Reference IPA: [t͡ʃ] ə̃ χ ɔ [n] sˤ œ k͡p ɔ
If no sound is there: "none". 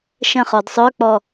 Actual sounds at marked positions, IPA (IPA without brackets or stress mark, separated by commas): ʃ, d